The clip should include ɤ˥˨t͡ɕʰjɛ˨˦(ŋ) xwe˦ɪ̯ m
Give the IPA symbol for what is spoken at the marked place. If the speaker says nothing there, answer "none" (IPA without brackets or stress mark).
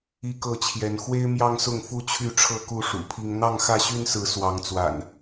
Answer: n